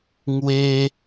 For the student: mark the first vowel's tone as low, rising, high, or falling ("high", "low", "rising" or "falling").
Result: high